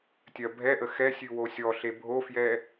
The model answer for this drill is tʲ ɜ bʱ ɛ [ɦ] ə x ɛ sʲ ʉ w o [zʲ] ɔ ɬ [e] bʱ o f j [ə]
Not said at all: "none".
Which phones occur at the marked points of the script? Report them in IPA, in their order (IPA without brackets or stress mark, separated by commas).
ʔ, sʲ, e, ɛ